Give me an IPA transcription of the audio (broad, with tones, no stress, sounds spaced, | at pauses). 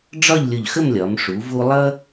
ɖ͡ʐ ɒ˥˧ ʎ lʲ ʊ˧˩ ʎ x ə˥˧ m lʲ ɒ˩˧ m ʂ u˩˧ v u˧ lˠ ʌ˥